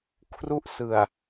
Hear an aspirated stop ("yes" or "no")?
yes